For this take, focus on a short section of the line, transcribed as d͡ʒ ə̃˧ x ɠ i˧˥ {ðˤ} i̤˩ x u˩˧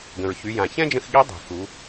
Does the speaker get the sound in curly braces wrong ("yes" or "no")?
yes